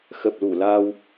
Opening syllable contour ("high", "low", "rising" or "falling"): low